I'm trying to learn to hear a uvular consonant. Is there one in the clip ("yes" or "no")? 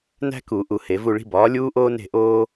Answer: no